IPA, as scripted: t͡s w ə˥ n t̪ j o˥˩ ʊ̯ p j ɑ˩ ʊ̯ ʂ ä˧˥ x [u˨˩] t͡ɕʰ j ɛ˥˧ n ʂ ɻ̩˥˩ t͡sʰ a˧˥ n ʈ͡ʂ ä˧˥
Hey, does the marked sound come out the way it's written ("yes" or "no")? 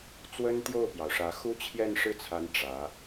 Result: no